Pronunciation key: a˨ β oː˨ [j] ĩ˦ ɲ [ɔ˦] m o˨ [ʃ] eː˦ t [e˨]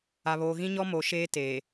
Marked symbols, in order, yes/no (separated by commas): no, yes, yes, no